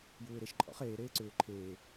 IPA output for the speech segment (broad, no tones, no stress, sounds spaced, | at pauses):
j uː ɪ̯ ɾ e ʃ ǃʼ ɔ̰ χ eː ɾ eː ǀ ʏː ǃʰ eː